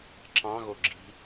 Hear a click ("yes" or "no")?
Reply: yes